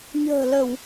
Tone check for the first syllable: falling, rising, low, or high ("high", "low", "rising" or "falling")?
low